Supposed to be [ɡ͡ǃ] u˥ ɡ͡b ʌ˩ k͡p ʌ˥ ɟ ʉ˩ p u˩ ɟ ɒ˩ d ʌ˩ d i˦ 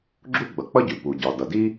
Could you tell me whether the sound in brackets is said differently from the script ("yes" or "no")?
yes